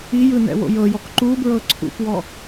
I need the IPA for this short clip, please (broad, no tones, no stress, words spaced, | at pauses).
ijɯ nɛ̰wo̰jɤjɔk ǃubɹɤ ǀʰṵpwɔ